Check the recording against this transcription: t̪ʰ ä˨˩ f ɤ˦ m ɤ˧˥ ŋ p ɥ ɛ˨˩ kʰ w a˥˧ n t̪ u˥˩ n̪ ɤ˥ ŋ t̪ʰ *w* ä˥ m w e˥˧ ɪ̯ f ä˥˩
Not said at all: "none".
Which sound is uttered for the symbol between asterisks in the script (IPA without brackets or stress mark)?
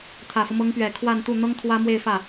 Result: w